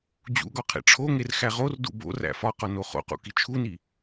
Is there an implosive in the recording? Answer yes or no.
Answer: no